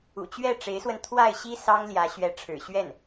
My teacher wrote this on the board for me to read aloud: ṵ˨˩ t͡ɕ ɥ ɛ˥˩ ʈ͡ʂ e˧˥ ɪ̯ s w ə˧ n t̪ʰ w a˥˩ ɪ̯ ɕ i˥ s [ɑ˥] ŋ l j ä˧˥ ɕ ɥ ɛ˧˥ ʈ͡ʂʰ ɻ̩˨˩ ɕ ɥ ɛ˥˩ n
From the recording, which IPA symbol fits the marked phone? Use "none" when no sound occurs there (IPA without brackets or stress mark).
ɑ˥